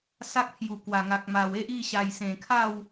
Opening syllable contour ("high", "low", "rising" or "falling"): high